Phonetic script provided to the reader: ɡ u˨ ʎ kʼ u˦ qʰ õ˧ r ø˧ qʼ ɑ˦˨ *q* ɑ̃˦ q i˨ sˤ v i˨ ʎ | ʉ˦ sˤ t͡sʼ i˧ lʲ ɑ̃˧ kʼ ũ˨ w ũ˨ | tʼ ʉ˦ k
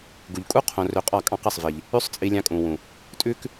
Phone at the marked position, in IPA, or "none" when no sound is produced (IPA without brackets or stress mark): kʼ